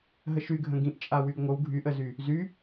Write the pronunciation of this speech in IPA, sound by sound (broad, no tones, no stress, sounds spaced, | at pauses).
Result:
ɦ ə ʃ y ɡʱ ə̃ ɡ ĩ ʔ t͡ʃʼ a w y ɡ ŋʷ ə w ɡʱ y ʔ ə z y | z y